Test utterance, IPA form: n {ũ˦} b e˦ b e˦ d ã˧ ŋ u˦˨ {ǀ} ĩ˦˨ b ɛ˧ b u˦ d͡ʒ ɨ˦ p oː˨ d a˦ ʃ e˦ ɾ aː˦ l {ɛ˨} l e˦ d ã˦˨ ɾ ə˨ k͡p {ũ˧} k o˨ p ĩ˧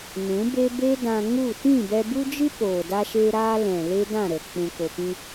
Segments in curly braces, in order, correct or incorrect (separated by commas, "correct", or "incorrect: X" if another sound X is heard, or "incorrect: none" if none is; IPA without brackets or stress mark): incorrect: ũ˨˦, incorrect: t, incorrect: ɛ̃˨, incorrect: ũ˨